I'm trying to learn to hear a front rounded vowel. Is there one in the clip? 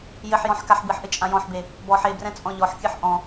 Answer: no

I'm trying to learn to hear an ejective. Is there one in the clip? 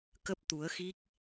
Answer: no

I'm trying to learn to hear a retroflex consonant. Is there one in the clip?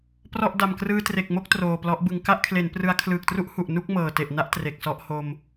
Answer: no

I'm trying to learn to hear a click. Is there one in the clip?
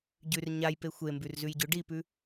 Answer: no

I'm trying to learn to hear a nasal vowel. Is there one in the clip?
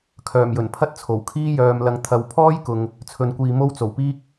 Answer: no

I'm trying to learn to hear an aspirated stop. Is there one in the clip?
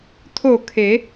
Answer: yes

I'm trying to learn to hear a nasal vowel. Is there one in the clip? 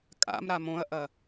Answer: yes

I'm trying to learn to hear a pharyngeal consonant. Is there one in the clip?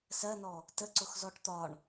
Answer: no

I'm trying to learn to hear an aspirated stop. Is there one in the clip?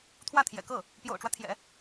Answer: yes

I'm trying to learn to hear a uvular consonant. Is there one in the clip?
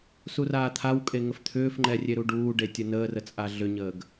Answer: no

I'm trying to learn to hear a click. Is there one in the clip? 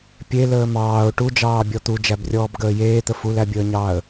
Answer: no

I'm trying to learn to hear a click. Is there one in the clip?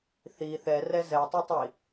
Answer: no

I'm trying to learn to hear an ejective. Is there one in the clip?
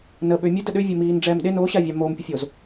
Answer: no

